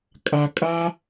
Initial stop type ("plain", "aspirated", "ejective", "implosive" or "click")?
ejective